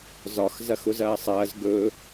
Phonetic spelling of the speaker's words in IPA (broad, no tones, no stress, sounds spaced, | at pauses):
z ɒ x z ɐ x ʊ z ɐː sˤ ɐː z ɡ ɵ